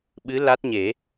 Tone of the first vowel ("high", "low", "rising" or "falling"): rising